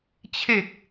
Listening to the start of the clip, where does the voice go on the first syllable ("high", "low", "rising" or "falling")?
low